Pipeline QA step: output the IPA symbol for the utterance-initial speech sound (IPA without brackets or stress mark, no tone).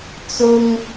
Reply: t͡s